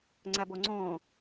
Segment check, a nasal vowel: present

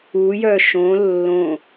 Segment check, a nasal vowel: present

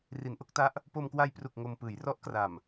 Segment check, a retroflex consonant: absent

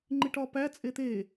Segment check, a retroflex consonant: present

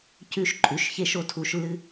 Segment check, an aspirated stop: present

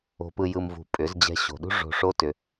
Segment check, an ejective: present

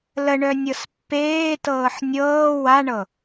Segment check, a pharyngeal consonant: present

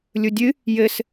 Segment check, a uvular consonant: absent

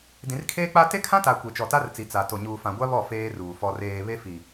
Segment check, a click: absent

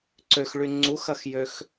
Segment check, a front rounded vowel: present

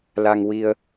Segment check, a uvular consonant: absent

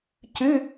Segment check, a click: absent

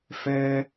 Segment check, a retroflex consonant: absent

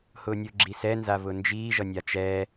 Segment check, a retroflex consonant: absent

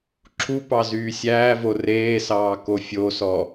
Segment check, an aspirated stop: present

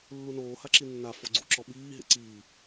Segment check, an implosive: present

